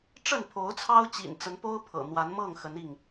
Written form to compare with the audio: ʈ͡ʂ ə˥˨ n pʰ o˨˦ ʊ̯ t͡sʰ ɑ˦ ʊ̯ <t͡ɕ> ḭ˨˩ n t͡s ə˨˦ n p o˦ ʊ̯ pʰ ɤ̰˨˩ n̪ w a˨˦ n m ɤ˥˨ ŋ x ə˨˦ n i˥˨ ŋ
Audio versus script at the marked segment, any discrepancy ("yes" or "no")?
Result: no